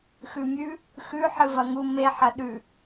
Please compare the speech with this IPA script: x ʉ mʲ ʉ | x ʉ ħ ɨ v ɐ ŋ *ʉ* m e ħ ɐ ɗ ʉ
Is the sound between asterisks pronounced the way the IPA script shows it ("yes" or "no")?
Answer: no